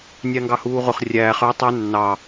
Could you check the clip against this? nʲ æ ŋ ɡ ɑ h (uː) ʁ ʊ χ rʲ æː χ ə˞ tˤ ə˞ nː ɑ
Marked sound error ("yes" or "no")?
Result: no